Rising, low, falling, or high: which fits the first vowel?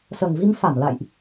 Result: low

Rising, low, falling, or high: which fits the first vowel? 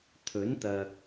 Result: rising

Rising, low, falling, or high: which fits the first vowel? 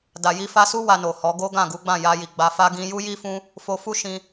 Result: low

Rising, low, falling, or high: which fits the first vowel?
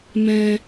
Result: high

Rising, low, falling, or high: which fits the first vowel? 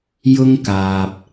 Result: high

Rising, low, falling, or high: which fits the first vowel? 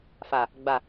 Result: low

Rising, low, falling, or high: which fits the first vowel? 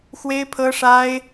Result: high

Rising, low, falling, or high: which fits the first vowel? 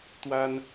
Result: high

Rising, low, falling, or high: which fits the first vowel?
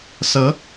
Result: rising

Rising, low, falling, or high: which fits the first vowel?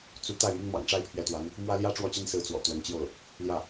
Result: rising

